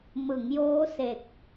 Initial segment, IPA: m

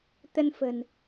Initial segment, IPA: t̪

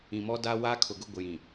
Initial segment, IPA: ĩ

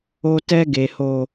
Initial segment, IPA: o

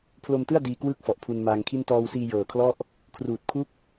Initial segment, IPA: pʰ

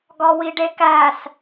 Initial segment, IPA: ɡ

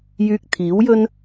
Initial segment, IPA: j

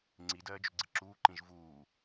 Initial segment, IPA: ŋ͡ǀ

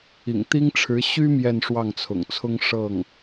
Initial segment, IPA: ḭ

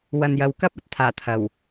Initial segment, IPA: w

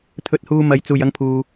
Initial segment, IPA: t̪ʰ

